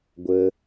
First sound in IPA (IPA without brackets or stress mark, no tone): ɡʷ